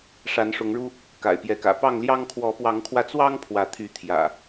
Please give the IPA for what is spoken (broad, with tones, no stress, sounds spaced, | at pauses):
ʂ a˨˦ n ʂ ʊ˨˦ ŋ ɻ u˦ | k a̰˨˩ ɪ̯ p j ɛ˨˦ k ä̰˨˩ p ɑ˥˨ ŋ l j ɑ˦ ŋ kʰ w ɔ˨˦ p w ɑ˨˦ ŋ kʰ w ä˧ t͡s w ɑ˦ ŋ pʰ w ä˨˦ t̪ʰ y˨˦ t̪ʰ j ä̰˨˩